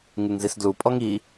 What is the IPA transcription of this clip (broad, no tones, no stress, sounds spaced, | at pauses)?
ŋ ɯ ŋ z i s d l u pʼ ɔ ŋ i